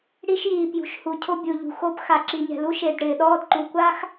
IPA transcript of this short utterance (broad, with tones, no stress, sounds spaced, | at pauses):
ɽ i˧ ʃ j iː˩ p j ṳ˩ ʃ h u˩ cʰ o˧ bʲ u˩ ʎ ṳ˩ x o˧ p x a˩ ǁ i˩ ɲ ɛ̤˩ l u˧ ʃ e˩ d ɽ ɪː˩ ɗ ɔː˧ d ǃ u˩ kʷ a˥ x